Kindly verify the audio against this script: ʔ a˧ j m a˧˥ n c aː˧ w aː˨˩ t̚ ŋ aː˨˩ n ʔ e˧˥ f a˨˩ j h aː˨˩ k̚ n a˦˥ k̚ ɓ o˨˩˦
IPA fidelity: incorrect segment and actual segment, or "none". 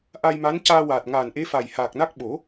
none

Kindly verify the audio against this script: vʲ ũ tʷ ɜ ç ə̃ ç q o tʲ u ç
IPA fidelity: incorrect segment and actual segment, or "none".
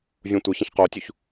none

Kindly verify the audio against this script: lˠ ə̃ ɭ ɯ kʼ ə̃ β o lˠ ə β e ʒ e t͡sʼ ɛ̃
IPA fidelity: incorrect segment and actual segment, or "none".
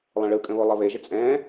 none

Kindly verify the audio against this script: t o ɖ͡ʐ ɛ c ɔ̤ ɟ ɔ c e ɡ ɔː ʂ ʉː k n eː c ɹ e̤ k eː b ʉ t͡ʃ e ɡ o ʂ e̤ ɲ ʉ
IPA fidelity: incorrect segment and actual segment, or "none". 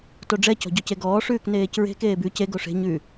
t͡ʃ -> c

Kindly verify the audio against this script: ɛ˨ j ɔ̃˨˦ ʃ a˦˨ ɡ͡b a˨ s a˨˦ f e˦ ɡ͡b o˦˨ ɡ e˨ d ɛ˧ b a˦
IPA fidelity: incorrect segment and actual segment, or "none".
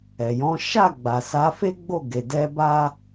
none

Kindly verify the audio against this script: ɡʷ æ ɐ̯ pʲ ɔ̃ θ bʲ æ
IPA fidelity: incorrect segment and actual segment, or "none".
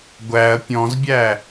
θ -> z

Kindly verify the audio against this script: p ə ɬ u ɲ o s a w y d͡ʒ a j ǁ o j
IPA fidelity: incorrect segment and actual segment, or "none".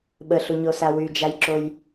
p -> ɓ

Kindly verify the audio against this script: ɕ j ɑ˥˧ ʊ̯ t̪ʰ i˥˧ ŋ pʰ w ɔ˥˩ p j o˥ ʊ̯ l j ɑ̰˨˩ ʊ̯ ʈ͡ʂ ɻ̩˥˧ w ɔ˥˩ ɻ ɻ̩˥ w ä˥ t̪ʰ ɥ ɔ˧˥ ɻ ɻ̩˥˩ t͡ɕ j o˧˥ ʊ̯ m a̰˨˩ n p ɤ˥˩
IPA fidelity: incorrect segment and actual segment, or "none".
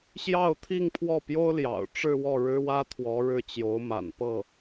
ɥ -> w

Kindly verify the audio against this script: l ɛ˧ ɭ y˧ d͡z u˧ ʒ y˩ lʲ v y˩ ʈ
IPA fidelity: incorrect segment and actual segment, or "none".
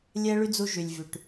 l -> lʲ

